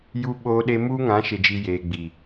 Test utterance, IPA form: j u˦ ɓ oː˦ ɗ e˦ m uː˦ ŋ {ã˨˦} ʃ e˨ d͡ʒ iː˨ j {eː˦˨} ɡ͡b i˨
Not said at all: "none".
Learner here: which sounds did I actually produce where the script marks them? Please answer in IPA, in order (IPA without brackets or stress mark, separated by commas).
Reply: ã˨˦, eː˨